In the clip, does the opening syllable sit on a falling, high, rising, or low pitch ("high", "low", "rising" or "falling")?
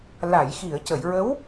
low